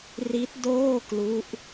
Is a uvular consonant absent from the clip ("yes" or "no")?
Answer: yes